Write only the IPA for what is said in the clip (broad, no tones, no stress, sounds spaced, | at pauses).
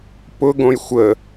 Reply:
p ʊ ɡ õ j xʷ ə